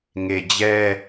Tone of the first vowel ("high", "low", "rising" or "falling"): low